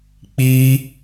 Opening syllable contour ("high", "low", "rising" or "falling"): high